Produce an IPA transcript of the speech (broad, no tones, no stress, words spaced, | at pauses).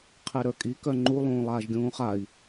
qʰeɾə˞kʼi kœŋ͡ǃu lˠũːlˠaːʒɡʲũːχai̯